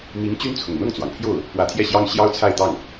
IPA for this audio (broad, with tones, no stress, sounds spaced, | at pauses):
m i˧˥ ŋ t͡ɕ y˥ n t͡sʰ ʊ˨˩ ŋ n̪ ɤ˥˩ ŋ t͡s w ɑ˩ ŋ pʰ j o˥˩ ʊ̯ | p w ä˧˥ t̪ʰ j ɛ˥˩ ɕ j ɑ˥ ŋ ɕ j ɑ˥ ʊ̯ t͡sʰ a˥˧ ɪ̯ t̪ ɑ˥˩ ŋ